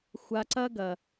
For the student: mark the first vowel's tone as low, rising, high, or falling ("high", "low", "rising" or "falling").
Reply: low